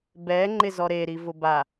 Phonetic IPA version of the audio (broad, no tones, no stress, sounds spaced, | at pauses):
b ɛ ŋ͡ǃ ɪ z ɔ ɾ e ɾ i v ʊ b a